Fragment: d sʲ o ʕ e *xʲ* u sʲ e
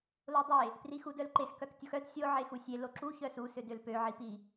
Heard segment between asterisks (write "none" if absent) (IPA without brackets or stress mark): x